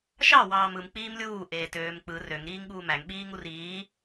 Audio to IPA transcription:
ʃ ɑ w ɑː m ɯ m k͡p iː m lʲ uː ʔ eː t øː m k͡p ɯ r ø ŋ ɾ iː ŋ ɠ uː m æ ŋ ɓ iː ŋ u r iː

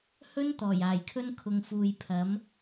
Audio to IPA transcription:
h ɵ˥ n t̪ ɔː˨˩ j aː˨˩ j kʰ ɵ˥ n kʰ ʊ˨ ŋ f uː˨ j pʰ ɐ˨˥ m

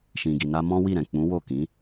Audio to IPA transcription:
ʃ ĩ˨ ɡ i˨ n a˧ m ɔ̃˦ w i˦˨ ɾ ɛ̃˨ k͡p ũ˨˦ w o˦˨ k ĩ˨˦

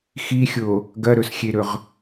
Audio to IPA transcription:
x i xʲ o | ɡ ɐ ɾ ɵ s xʲ e ɾ ɵ ʁ

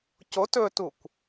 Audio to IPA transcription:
c o t ɵ t u kʷ

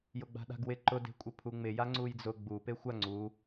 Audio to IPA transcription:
j ʊ ɡ͡b a̤ ɗ a̤ ɡ w ɪ ǃ ʊ d e̤ kʷʼ ɪ pʰ u ŋ͡m ɪ j a ŋ͡ǀ u j d͡z ʊ ɡ͡b u p e xʷ a ŋ͡ǀ u

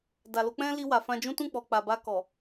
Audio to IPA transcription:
d a˨ l o˧ k͡p ɛ̃˦ l i˧ w a˨ f ã˧ d͡ʒ ũ˦ t ũ˦˨ k͡p ɔ˨ k͡p a˨ b a˧ k ɔ˨

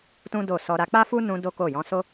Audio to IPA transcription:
t ũ˦ d o˦˨ s ɔ˧ ɾ a˧ k͡p a˦ f u˦ n ũ˧ d o˦ k o˦˨ j ɔ̃˧ s o˦

